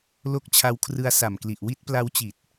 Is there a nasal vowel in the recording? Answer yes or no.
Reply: no